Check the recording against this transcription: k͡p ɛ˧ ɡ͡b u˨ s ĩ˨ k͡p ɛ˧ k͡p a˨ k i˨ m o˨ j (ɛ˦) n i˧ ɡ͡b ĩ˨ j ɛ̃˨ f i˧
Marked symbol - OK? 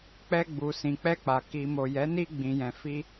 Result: no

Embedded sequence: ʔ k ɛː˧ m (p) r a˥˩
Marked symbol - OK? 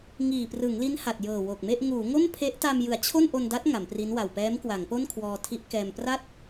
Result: yes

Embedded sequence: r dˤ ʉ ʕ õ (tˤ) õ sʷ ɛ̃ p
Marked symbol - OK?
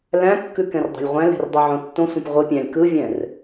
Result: no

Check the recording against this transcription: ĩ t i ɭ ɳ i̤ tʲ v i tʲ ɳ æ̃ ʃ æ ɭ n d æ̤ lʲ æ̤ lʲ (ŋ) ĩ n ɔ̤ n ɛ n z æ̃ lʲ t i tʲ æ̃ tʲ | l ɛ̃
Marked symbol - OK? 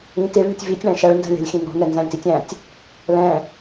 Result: no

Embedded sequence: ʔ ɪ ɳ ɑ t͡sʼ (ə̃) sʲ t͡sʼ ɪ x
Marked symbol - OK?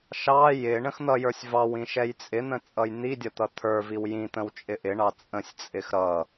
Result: yes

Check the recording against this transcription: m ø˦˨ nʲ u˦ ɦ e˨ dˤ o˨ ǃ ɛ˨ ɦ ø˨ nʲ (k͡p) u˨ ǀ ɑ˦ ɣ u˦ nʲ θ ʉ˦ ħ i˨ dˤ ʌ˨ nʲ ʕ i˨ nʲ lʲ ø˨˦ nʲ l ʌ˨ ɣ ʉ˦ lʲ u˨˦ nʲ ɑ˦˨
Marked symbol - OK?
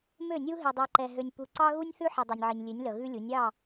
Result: no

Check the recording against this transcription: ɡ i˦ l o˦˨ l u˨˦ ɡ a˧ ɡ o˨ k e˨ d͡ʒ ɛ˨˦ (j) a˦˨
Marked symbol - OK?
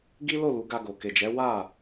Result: no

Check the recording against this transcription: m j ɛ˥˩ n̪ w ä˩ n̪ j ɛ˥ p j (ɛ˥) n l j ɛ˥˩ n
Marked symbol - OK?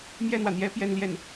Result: yes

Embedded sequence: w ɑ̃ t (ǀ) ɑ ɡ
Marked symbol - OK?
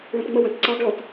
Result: yes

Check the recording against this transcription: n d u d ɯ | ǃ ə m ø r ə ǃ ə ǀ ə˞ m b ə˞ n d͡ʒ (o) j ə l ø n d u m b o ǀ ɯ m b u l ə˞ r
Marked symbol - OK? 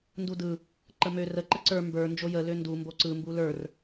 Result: yes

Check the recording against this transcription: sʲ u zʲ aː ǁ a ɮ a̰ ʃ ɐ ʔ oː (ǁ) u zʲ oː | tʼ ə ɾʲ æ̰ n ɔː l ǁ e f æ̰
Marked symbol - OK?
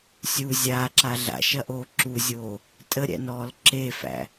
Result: yes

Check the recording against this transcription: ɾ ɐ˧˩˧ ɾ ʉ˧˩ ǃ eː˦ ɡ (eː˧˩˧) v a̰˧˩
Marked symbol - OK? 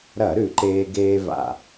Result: no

